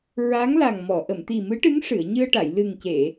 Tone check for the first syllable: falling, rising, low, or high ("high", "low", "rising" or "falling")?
rising